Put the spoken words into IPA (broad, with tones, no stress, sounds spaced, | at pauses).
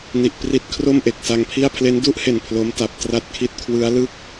n i˨˩ ʔ p r i˦˥ t̚ kʰ r o˥˩ m ʔ e˨˩ k̚ s a˧ ŋ pʰ i˥˩ a̯ pʰ l e˦˥ n d u˥˩ ʔ h e˨˩ n pʰ l o˦˥ m t a˨˩ p̚ t r a˥˩ t̚ kʰ i˦˥ t̚ kʰ w ɯ˦˥ a̯ l ɯ˥˩ k̚